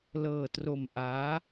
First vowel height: mid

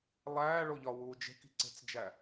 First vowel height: low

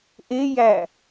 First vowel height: mid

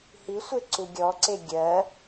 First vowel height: high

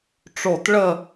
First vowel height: mid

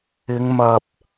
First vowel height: high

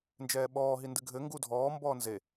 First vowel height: mid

